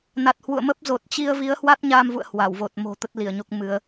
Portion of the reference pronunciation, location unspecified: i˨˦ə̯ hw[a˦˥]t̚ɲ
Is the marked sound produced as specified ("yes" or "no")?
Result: yes